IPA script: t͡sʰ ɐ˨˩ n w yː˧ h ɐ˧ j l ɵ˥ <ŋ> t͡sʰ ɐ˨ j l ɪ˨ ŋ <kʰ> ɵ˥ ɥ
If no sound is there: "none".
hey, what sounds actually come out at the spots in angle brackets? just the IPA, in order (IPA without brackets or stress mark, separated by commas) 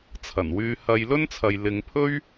n, pʰ